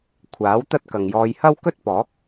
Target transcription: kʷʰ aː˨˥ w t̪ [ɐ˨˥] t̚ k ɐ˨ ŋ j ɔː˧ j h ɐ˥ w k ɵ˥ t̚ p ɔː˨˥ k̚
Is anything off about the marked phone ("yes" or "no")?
yes